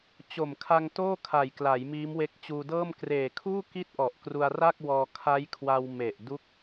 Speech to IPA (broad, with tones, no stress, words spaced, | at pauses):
t͡ɕo˨˩mkʰa˧ŋ toː˥˩kʰa˨˩jkla˩˦j miː˦˥mwe˦˥k̚ t͡ɕuː˧dɤː˥˩m kreː˨˩kʰuː˥˩ ki˥˩t̚ʔɔ˨˩ʔ kru˧a̯ra˥˩k̚wɔː˧ kʰa˦˥jkʰwa˧w me˨˩ʔ du˦˥k̚